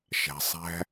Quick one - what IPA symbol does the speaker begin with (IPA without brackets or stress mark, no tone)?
ʃ